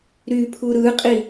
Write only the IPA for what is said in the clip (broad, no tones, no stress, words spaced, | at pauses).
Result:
ɾypʰu ɾɯqʼi